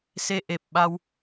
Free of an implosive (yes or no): no